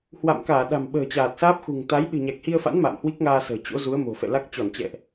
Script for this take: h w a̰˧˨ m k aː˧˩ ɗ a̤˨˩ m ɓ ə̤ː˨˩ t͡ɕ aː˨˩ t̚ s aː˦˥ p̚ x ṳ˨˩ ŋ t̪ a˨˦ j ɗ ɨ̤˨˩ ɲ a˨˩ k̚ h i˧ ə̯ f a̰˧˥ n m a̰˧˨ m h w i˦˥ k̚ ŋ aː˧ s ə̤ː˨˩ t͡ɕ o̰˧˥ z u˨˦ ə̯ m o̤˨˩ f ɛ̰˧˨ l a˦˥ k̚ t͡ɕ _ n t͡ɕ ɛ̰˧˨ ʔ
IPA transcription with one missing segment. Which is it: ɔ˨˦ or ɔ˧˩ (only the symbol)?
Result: ɔ˧˩